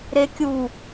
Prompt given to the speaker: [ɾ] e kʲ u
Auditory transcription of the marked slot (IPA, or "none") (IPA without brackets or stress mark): ɾ